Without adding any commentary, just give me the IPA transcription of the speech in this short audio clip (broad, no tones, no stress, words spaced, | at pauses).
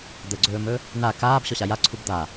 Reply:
d̪əɡ͡ǀɵːmɵ | na kaːb ɕɔɕaja ǀʰubd̪a